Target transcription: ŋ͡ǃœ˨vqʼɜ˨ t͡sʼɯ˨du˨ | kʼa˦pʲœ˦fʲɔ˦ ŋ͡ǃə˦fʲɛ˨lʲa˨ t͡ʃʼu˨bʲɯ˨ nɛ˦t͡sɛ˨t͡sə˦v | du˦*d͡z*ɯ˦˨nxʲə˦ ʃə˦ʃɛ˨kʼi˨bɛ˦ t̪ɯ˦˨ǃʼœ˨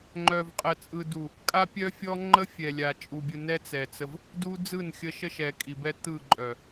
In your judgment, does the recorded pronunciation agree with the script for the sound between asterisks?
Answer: yes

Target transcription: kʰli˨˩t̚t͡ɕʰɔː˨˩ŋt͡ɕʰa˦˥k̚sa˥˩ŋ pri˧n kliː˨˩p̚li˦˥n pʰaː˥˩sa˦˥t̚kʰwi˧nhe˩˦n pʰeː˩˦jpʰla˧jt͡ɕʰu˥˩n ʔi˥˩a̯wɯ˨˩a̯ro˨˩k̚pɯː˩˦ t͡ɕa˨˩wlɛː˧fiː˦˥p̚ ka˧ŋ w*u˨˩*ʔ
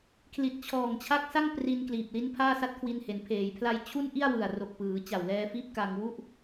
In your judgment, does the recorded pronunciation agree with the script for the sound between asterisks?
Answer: no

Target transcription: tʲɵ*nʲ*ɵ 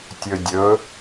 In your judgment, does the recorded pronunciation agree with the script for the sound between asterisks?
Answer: no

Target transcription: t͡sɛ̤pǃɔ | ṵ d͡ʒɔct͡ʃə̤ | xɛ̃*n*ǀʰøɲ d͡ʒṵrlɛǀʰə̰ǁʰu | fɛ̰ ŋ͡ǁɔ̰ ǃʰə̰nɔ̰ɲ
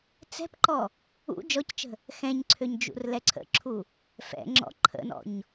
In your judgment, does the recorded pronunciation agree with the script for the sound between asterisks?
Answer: no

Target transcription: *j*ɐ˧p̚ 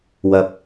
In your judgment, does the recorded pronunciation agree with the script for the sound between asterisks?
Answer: no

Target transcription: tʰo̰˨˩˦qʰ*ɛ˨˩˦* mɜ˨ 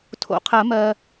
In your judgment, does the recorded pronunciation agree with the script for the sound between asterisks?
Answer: no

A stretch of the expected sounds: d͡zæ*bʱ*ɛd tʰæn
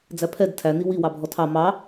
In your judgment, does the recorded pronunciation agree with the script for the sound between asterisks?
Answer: no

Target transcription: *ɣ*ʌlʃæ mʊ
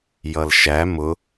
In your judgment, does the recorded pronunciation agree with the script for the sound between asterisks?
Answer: no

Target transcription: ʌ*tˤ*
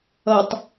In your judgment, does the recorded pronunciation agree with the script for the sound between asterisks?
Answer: yes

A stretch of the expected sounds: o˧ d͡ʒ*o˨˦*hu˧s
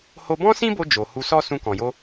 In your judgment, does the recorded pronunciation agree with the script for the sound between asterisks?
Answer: no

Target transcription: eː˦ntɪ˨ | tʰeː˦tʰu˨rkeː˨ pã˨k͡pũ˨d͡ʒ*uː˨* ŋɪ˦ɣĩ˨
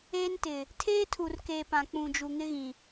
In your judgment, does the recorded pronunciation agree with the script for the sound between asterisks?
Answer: no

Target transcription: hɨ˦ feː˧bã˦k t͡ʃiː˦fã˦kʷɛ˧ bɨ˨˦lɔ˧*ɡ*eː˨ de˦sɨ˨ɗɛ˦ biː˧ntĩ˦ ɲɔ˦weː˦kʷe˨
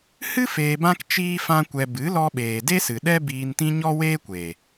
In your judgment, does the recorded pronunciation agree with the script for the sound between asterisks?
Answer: no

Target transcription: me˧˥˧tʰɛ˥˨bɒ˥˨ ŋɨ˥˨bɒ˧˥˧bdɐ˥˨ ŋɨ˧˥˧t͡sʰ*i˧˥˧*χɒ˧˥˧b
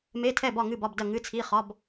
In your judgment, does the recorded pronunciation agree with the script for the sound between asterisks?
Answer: yes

